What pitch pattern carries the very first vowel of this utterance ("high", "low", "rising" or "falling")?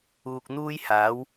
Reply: low